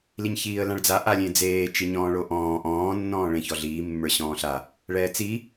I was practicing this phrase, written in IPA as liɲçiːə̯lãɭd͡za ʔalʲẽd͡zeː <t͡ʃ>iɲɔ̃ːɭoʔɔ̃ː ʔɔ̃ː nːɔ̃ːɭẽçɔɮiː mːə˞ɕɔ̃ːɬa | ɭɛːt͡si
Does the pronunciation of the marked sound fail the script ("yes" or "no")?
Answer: no